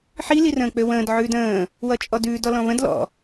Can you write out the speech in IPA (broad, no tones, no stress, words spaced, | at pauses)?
ħi lirə̃ːk͡pøwə̃ːd ʕʉːdə̃ː | wʌt͡ʃʼɔdʉːd ɔlɔ̃βə̃d lɔ̰